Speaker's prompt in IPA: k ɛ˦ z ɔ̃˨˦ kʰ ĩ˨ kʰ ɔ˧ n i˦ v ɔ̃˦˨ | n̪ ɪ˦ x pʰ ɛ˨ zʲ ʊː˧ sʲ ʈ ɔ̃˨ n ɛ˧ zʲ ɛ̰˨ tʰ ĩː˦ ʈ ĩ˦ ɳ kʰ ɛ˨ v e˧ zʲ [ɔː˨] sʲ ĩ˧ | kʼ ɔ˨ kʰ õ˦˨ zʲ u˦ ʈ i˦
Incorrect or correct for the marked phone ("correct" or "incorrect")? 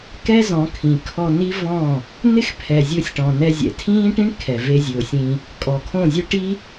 incorrect